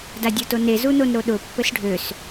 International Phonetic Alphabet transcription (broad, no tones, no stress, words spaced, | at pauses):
dadʲotone zunonɾoɗʊ pːɘsɖʱøs